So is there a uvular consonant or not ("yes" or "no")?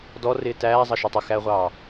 yes